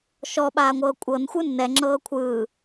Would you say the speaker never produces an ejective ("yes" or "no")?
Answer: no